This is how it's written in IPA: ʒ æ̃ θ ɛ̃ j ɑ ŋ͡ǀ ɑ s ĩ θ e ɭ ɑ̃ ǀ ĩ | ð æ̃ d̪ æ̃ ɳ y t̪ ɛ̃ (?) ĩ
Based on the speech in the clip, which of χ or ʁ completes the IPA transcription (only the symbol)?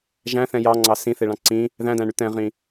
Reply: ʁ